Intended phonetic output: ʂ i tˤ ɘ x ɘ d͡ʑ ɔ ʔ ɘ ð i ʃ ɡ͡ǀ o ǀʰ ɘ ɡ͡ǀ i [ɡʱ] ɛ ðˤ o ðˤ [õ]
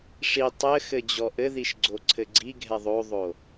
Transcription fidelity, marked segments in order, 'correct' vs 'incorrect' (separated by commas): correct, incorrect